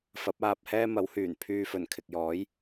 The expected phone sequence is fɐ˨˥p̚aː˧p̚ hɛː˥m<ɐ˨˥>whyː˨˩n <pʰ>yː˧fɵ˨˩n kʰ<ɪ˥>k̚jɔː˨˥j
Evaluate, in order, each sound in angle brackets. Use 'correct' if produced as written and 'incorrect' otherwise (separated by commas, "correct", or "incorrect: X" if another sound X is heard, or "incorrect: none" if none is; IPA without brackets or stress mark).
correct, correct, incorrect: ɪ˨